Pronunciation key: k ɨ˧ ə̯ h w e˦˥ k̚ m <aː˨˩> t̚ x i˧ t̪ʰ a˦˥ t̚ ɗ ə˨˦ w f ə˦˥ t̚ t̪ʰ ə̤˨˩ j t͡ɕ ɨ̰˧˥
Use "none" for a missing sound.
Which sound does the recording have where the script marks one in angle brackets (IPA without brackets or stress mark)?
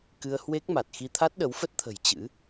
a˨˩